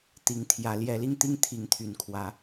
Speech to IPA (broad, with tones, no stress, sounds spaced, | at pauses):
t̪ i˨˦ ŋ t̪ʰ j ä˨˦ l j ɛ˨˦ l i˧ ŋ t̪ i˦ ŋ t̪ʰ i˨˦ ŋ t̪ʰ y˨˩ n kʰ w ä˨˦